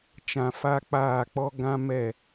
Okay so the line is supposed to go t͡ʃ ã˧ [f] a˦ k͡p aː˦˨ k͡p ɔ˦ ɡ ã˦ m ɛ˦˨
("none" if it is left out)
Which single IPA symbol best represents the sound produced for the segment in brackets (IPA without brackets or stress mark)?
f